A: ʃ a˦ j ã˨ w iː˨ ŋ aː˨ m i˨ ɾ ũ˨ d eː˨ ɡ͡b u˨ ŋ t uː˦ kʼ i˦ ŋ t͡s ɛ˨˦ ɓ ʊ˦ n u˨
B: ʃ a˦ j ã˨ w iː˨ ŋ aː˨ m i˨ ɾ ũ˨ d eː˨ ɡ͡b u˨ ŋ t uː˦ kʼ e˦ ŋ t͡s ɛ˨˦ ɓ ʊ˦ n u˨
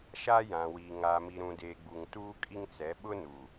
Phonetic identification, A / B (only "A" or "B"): A